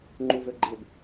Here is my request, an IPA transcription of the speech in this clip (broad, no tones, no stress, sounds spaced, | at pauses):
ŋ͡ǃ u v ø ɡ͡ǃ ɪ b